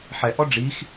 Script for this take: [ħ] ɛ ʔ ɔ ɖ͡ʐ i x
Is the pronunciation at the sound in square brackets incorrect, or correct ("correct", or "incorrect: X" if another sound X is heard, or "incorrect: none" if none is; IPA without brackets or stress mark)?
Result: correct